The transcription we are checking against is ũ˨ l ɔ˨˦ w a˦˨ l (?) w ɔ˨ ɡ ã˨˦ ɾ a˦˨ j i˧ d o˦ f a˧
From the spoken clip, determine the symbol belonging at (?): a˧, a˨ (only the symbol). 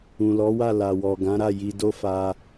a˨